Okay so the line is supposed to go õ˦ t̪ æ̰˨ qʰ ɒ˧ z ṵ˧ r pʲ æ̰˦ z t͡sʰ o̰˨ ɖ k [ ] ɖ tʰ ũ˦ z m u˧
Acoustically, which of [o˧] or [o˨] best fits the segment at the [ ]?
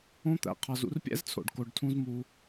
o˧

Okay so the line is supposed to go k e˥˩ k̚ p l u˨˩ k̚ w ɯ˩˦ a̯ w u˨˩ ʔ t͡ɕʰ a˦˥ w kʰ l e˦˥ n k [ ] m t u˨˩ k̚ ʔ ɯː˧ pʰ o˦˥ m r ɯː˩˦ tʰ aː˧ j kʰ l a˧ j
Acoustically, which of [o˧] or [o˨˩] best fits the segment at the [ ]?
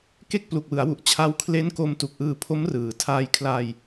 o˧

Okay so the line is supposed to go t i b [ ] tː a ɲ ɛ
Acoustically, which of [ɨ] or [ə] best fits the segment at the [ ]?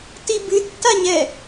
ɨ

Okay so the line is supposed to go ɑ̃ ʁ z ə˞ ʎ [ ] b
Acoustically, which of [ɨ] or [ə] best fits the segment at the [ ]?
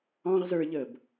ə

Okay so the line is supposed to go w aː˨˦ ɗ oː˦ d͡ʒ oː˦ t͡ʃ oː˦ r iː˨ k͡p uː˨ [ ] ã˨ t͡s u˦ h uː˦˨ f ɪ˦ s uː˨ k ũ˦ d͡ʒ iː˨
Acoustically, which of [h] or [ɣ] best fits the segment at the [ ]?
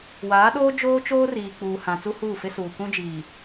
h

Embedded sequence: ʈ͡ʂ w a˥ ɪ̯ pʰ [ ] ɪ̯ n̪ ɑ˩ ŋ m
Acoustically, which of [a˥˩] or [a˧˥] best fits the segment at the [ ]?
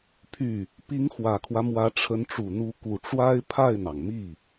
a˥˩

